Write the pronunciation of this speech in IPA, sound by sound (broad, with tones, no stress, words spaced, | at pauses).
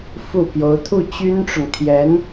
fu˥˩ pjo˧˥ʊ̯t̪ʰu˥˩ t͡ɕy˥nʈ͡ʂʊ˨ŋt̪ʰjɛ˧˥n